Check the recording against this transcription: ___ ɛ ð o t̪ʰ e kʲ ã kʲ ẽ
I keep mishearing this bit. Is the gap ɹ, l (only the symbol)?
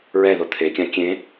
ɹ